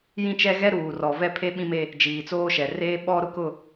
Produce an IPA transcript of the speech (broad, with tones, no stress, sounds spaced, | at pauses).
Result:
j ĩ˦ t͡ʃ ɛ˦ ɣ ɛ˦ ɾ uː˨ r ɔ˨ v ɛ˦ pʰ e˦ ɓ ĩ˦ m e˦ | d͡ʒ iː˨ t͡s oː˦ ʃ ɛ˨ r eː˦ ɓ ɔ˦ ɾ ʊ˦ k ʊ˦˨